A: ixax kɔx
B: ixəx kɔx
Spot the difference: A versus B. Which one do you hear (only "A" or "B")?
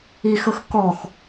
B